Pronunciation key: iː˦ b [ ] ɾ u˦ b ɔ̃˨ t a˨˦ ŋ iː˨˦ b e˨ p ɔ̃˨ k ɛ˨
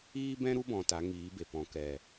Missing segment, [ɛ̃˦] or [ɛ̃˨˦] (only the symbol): ɛ̃˦